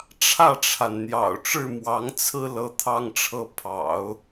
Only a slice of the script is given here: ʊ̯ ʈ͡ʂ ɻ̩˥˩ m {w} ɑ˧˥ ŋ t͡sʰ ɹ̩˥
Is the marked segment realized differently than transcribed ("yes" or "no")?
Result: no